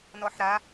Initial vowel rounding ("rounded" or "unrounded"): rounded